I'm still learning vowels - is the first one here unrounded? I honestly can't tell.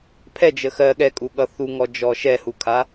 yes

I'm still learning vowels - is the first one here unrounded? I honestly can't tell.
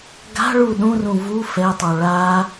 yes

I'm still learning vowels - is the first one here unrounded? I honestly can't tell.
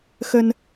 yes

